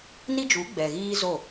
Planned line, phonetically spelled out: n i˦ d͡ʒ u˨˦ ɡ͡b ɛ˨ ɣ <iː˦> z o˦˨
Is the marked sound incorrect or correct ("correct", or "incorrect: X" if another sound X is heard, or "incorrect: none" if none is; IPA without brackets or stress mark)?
correct